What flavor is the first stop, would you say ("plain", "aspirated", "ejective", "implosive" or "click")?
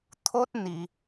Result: aspirated